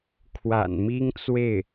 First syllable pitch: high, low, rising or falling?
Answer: low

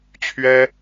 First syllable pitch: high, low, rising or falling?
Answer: high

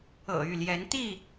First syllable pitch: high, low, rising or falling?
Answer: low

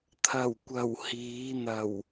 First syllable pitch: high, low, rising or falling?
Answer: low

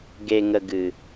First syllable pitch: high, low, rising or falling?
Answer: low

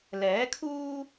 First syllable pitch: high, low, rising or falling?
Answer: rising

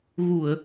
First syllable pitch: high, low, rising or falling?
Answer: low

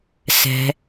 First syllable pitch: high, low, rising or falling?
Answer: low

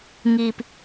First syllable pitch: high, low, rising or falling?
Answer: low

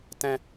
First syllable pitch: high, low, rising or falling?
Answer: high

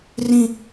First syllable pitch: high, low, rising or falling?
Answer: low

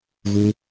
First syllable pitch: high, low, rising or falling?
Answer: low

